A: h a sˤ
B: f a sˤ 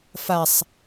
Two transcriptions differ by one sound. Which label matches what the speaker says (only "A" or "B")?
B